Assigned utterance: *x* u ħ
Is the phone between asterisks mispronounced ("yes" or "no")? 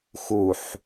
no